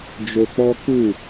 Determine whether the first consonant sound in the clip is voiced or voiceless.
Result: voiced